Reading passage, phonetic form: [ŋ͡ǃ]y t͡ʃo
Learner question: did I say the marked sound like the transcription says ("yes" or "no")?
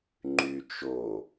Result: yes